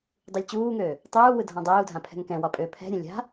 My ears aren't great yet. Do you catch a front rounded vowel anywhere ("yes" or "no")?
yes